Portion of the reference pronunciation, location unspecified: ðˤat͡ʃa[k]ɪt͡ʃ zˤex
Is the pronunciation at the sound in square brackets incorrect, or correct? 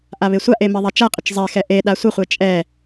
incorrect